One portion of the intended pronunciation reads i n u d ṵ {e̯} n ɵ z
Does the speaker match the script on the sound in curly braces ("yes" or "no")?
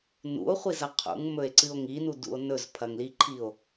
no